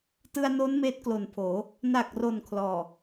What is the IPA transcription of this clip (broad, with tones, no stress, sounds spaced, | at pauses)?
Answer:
t ɯ˧ a̯ n oː˦˥ n m eː˦˥ t̚ k l o˨˩ n pʰ oː˩˦ | n a˨˩ k̚ r o˨˩ n kʰ l ɔː˨˩